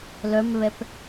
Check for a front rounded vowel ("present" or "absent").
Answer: present